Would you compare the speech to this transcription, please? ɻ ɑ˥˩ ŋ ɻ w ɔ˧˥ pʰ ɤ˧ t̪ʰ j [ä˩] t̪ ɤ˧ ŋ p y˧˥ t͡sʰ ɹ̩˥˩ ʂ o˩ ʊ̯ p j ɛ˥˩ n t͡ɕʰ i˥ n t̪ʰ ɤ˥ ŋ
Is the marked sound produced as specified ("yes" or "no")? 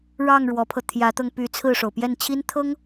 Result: no